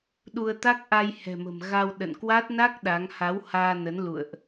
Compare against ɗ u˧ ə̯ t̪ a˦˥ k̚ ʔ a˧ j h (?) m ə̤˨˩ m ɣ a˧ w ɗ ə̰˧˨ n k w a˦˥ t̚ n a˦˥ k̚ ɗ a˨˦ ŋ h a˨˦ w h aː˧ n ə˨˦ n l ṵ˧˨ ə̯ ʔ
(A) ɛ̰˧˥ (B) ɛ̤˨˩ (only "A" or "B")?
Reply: B